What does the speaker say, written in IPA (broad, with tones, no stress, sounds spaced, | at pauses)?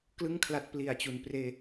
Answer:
k l ɯ˥˩ ŋ kʰ l a˦˥ t̚ p l i˨˩ a̯ t͡ɕ u˨˩ n p r eː˧